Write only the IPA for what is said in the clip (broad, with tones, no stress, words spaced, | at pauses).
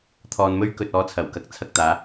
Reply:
t̪ʰɔː˧nmɵ˥ɥkɵ˧t̚ ɔː˨˥ t͡sʰɐ˨˩wkɐ˧k̚ t͡sʰɐ˧k̚t̪aː˨˧